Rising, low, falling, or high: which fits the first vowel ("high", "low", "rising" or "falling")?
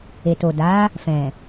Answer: low